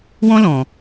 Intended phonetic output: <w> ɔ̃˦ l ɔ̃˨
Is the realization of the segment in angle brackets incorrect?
no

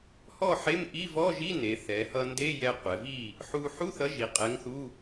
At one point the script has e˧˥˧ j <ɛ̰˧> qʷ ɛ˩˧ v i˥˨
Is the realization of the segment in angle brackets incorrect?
yes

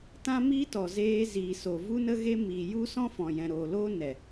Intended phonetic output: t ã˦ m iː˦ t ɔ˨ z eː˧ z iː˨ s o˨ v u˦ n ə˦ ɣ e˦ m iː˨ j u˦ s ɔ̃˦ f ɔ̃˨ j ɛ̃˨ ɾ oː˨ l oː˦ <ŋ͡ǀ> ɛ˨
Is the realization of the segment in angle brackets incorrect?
yes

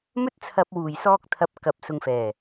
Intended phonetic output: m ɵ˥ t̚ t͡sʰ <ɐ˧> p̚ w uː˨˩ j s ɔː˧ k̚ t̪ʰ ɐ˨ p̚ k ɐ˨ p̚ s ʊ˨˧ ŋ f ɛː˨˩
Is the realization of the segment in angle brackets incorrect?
no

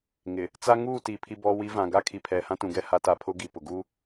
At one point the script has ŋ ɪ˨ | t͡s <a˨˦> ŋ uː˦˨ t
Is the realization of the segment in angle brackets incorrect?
yes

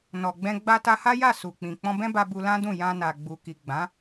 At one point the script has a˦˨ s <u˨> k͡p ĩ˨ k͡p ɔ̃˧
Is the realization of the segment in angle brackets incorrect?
no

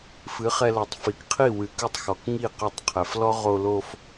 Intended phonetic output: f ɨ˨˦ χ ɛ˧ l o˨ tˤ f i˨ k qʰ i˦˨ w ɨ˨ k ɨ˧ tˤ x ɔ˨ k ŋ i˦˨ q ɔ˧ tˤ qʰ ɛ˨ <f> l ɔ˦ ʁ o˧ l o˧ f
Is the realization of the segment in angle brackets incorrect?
no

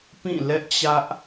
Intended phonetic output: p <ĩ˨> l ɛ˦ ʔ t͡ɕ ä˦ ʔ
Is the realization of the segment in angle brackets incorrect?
yes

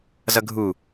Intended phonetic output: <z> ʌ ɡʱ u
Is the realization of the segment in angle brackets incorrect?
no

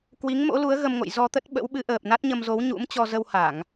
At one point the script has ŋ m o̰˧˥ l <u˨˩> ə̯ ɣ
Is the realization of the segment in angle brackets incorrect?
yes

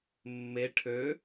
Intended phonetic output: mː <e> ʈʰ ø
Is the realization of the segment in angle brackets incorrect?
no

